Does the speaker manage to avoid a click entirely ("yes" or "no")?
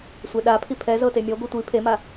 yes